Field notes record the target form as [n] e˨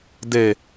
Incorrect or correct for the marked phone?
incorrect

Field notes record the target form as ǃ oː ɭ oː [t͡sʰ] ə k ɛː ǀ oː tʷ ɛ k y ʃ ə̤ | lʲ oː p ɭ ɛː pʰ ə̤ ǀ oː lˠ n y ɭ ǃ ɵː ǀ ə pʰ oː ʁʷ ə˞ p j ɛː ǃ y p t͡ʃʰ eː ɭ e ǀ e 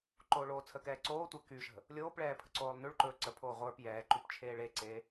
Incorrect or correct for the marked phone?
correct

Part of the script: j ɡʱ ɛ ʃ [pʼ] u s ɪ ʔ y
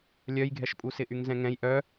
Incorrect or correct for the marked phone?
correct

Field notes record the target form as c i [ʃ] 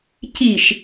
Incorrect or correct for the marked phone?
correct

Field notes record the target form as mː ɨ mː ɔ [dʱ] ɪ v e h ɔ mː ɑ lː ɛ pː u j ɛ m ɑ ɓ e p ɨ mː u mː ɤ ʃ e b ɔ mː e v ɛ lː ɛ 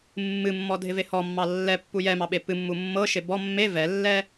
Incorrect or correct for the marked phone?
correct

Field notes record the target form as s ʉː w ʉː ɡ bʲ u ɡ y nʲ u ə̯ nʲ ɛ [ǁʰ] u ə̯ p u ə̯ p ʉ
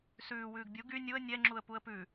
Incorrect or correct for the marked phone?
incorrect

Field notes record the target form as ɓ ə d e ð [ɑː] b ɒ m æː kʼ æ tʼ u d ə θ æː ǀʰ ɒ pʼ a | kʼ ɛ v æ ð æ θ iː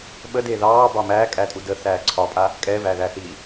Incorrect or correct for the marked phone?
correct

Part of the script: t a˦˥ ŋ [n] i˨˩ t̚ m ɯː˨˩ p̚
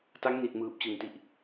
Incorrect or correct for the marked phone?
correct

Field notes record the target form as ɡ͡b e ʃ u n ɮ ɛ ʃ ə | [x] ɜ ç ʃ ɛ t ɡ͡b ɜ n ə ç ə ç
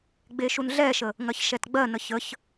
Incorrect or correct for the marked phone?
incorrect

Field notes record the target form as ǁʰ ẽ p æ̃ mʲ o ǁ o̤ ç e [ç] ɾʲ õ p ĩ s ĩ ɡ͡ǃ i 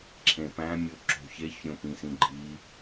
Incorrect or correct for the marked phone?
correct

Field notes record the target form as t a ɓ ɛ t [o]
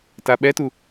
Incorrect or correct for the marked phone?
incorrect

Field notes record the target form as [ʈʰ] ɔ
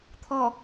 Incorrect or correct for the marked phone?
incorrect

